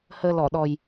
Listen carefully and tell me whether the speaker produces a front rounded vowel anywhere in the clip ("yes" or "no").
no